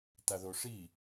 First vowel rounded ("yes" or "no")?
no